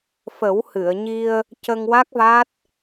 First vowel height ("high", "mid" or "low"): mid